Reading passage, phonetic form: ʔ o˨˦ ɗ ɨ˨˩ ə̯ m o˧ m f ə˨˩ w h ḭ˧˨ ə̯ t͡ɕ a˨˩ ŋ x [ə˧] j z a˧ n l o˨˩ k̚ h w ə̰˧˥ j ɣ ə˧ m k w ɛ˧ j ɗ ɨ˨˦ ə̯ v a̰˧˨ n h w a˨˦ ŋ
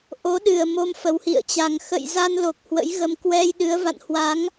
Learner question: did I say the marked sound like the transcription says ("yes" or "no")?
no